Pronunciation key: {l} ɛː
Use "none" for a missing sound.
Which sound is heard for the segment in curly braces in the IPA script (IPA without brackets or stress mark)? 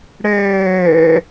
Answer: ɽ